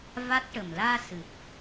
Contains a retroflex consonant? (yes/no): yes